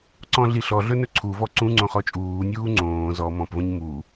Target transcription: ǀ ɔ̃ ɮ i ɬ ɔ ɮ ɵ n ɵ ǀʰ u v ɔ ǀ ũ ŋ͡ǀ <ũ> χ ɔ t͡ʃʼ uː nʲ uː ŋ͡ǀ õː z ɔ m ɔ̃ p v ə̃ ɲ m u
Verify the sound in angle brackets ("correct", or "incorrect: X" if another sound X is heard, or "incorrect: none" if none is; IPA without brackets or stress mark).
incorrect: õ